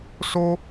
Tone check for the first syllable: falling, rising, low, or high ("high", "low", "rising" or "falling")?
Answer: high